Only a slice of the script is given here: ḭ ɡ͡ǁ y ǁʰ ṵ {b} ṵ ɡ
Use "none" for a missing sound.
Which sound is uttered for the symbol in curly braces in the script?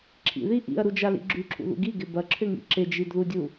ð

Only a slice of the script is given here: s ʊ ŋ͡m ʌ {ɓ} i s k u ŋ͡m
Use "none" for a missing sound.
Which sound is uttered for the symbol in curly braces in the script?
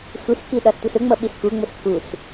ɓ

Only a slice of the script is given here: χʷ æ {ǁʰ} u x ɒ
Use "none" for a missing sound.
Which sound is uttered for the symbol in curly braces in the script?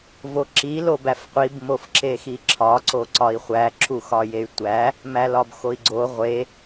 ǁʰ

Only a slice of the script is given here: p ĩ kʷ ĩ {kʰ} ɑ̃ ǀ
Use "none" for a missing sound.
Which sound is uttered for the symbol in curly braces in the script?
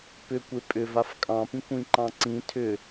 ǃ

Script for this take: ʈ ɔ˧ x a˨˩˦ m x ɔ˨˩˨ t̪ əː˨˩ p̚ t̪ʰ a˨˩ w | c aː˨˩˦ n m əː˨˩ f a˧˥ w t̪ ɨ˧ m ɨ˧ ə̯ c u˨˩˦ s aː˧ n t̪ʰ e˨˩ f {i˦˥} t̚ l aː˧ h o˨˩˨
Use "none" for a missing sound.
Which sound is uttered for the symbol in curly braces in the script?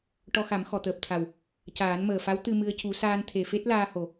e˦˥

